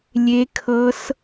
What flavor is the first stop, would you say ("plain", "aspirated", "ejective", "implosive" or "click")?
aspirated